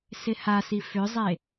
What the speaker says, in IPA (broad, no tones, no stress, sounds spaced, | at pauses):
s ɪ h a s i f ʏ zˤ e